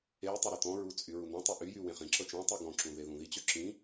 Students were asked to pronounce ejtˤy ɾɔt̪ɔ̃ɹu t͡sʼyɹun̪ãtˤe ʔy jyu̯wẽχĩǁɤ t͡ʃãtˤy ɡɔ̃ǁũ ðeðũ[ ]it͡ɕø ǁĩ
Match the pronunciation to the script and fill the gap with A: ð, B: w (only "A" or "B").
A